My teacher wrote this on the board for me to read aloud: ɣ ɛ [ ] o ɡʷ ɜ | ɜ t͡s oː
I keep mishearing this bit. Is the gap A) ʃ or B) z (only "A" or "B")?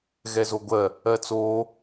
B